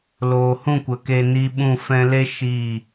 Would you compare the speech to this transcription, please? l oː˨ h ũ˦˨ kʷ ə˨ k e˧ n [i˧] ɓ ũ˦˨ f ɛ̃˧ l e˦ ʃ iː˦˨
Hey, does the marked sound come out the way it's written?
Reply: yes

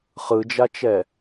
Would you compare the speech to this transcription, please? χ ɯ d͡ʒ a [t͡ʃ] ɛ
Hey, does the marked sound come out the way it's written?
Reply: yes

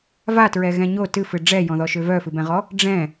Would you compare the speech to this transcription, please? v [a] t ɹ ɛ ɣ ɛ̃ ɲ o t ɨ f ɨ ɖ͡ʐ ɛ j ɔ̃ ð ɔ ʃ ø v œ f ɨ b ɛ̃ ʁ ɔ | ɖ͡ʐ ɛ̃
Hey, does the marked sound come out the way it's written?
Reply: yes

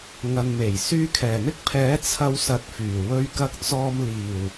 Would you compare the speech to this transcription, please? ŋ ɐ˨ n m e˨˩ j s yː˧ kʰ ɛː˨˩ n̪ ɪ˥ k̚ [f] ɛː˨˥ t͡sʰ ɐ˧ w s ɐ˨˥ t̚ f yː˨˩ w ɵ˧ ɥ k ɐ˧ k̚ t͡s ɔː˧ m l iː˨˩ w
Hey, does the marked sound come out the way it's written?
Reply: no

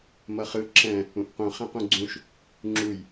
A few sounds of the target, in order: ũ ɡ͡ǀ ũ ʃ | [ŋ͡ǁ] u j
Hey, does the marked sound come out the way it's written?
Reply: yes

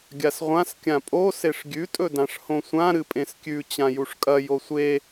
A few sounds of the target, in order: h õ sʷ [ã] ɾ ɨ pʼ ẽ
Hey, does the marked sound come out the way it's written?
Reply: yes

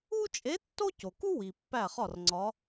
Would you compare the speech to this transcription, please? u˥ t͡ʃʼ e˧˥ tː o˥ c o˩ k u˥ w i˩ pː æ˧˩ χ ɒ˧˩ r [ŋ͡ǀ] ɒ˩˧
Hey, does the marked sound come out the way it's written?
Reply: yes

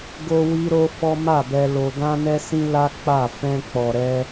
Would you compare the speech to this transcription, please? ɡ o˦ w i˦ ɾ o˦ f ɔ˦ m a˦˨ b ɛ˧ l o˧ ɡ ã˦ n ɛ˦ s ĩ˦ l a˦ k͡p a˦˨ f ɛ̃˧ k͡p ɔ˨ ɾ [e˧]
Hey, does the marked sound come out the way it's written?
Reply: no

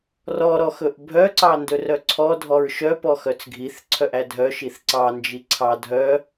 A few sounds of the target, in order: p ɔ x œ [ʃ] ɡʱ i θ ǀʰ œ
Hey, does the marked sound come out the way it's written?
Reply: no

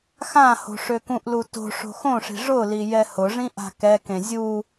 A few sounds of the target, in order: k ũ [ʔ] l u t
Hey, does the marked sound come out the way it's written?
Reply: yes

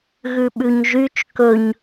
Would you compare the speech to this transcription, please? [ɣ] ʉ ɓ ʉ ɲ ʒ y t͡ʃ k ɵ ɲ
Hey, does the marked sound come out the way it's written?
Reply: yes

